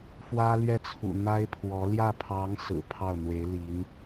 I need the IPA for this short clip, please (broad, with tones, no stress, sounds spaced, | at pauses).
f w ä˥ l ɥ ɛ˥˩ t͡sʰ ṵ˨˩ n̪ a˥ ɪ̯ pʰ w ɔ˧˥ l j ä˥˩ pʰ ɑ˧˥ ŋ s ɹ̩˨˩ pʰ ɑ˥˩ ʊ̯ n̪ w e˧˥ ɪ̯ l i˧˥ n